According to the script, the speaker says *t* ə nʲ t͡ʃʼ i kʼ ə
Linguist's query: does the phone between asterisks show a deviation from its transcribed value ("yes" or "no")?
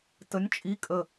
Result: no